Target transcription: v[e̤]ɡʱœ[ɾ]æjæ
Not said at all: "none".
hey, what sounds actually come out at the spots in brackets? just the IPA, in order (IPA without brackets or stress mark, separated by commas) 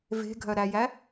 e̤, ɾ